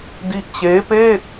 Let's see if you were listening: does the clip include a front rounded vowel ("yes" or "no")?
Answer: no